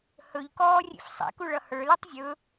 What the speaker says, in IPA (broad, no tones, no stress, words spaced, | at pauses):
hɵʎkɔː rʲḛfsˤḛku ɭʌhə˞lutˤ zʲɵ